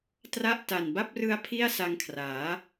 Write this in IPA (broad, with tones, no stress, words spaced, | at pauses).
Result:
tra˦˥ʔ ta˨˩n ba˦˥p̚rɯ˦˥a̯ pʰi˥˩a̯sa˧ŋkʰraː˩˦